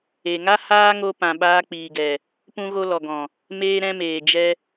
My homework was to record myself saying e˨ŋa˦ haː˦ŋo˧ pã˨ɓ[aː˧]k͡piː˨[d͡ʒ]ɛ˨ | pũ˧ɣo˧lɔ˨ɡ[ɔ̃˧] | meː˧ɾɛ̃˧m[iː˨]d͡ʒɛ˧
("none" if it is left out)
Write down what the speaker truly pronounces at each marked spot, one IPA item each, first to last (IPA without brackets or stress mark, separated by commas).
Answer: aː˧, ɡ, ɔ̃˨, eː˨